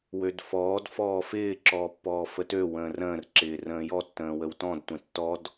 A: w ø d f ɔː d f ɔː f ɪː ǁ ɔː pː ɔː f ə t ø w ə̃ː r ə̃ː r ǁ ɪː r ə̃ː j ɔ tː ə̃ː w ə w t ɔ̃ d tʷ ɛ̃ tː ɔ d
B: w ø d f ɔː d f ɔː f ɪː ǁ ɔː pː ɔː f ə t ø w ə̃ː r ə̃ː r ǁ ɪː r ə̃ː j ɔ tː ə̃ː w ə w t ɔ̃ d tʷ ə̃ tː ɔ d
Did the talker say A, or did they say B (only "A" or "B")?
A